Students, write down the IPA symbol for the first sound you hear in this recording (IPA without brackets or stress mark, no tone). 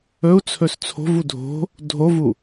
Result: ɵ